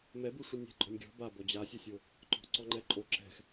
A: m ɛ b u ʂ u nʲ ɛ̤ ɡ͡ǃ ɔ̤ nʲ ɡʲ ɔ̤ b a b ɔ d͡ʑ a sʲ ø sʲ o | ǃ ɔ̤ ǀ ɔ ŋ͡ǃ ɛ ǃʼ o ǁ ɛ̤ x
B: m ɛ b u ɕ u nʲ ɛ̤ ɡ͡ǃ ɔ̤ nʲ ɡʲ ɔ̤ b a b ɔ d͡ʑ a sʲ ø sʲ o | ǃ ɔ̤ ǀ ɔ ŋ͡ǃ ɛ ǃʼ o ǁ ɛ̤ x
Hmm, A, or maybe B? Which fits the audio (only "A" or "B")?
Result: A